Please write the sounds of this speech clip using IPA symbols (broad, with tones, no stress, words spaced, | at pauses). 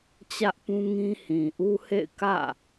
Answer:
t͡ɕä˦ʔpũ˦ŋĩ˦ hĩ˨ʔu˦hḛ˦˨ɪ̯ kä̰˦˨